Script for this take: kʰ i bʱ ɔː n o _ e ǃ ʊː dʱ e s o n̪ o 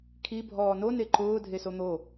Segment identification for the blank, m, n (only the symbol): n